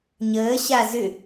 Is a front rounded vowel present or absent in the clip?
present